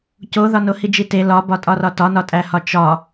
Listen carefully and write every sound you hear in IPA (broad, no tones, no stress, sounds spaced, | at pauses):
c o ð ɒ n o h i d͡ʒ i t e l ɒ b ɒ tʼ ɒ r ɒ t ɒ n ɒ tʼ æ h ɒ t͡ʃ ɒ